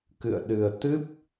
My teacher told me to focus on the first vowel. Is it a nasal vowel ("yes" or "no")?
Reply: no